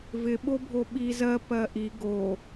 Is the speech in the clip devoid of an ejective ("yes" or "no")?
yes